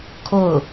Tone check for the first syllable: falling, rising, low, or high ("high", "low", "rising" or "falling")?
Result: falling